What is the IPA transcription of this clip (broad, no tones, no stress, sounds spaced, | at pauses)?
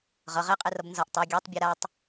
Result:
ʁ ʌ ʁ e qʼ e r ʌ b n z ʌ ʔ tˤ ɛ ɡʲ a tˤ bʲ ɛ ɾ a tˤ